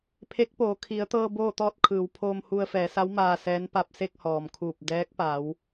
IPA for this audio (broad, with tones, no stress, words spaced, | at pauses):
pʰe˧˥k̚poː˩˧ kʰi˩˧ə̯t̪ɤː˧ boː˥˨t̪ɔː˥˨t̚kʰɯː˩˧wpʰoː˧m hu˧ə̯fɛː˩˧sa˧˥w maː˧sɛː˧˥npa˧p̚ se˥˨k̚hɔː˩mkʰuː˧˩p̚ dɛː˧˥k̚pa˩˧w